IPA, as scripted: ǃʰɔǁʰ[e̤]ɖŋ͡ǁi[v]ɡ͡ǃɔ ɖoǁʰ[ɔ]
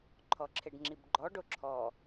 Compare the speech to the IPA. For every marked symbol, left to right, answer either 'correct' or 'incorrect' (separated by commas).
incorrect, incorrect, correct